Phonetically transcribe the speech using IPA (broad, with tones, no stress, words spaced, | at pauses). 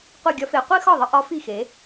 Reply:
qʷi˥˩ɡʲɒ˥fe˩˥ qʷi˥xɒ˥˩ðˤə˥ʔɒ˩˥ fi˥˩xe˩˥